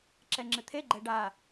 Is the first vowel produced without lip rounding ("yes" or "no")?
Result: yes